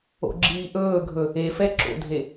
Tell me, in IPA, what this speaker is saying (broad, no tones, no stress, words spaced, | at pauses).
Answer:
o̰ɡ͡ǁiːʔɵːɡʱɵ | efɛ ǁo̰dʱe